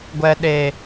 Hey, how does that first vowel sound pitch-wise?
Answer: low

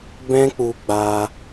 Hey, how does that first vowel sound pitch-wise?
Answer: high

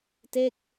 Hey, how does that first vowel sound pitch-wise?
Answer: falling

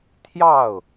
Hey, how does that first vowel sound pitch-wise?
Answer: falling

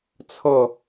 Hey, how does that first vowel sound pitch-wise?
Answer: falling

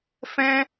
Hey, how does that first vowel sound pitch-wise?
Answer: high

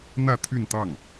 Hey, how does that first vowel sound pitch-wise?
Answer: falling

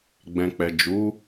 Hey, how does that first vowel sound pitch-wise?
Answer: low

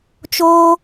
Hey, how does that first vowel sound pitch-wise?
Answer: high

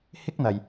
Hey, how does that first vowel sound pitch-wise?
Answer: high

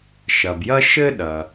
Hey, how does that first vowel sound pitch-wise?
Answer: low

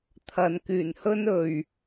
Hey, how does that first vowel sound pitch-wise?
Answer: low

